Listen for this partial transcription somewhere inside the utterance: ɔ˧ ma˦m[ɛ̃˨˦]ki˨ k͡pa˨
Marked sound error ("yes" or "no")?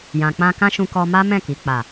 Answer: yes